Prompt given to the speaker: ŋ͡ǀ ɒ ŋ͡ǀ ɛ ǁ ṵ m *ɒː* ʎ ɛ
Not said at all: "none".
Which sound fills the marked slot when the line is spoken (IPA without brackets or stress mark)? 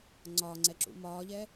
ɒː